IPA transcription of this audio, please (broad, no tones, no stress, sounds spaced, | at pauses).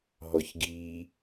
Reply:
ɦ ɔ ç ɡ i